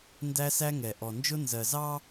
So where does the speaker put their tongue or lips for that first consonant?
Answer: tongue tip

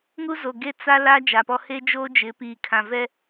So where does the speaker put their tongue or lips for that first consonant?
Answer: velum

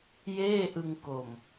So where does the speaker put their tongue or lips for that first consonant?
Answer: palate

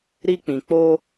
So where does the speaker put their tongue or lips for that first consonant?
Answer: tongue tip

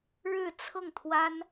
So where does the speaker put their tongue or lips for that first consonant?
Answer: retroflex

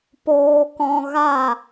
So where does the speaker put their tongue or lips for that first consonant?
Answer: lips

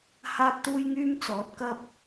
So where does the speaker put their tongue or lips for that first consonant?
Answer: throat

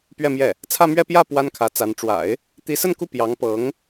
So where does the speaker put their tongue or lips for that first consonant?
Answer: lips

